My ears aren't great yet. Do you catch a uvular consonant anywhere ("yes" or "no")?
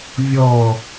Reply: no